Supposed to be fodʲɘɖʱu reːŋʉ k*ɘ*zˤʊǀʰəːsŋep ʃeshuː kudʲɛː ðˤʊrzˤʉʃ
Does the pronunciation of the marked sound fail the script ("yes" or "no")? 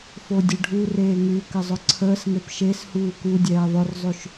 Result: no